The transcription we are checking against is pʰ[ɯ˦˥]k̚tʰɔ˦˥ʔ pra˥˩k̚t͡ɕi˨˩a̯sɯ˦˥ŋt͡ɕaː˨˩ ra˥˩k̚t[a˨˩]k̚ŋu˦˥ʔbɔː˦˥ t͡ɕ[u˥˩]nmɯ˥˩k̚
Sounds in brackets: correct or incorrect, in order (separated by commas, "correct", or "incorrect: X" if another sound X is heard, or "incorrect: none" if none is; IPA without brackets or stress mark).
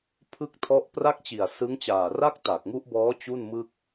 correct, correct, correct